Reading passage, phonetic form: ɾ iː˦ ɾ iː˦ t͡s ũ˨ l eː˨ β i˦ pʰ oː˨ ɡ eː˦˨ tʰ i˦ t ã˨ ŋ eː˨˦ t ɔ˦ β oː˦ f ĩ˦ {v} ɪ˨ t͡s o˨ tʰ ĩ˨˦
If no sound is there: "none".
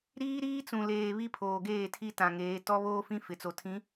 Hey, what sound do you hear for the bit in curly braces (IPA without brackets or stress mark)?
f